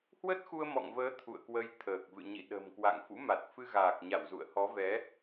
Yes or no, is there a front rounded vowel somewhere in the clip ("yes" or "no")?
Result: no